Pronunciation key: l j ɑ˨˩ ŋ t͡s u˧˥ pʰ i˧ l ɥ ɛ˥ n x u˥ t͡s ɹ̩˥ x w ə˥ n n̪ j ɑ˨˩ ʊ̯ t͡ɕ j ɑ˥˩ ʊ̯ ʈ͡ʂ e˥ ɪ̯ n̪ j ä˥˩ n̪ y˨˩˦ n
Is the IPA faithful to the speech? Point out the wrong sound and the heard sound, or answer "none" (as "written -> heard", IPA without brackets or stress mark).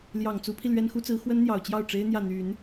none